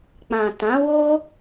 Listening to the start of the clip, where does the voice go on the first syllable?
low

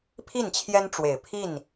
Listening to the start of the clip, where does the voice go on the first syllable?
falling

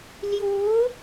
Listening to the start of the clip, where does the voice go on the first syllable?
rising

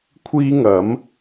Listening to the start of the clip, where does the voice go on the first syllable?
high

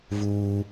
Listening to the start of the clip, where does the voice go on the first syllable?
high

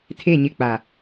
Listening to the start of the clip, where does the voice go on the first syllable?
falling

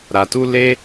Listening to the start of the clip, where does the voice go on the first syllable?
low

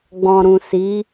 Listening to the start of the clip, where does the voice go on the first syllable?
low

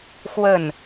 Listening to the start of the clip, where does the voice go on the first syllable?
falling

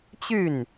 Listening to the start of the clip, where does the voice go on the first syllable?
falling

